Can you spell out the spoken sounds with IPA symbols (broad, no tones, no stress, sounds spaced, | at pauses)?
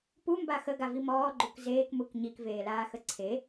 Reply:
p u m b a x ə ɡ a v i m ɔː ɡ͡ǃ u k z eː k m u k ɲ i k v eː l aː x ə ǀʰ e